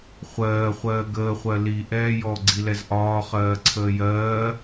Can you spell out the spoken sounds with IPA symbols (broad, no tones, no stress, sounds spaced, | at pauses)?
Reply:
χʷ ɜː χʷ ɜː ɡ əː χʷ ɜ l i ʔ ɛː j ɔ ɡ͡ǀ i l ɛ z ʔ ɒː χ ɜː ǀʰ əː j ɜː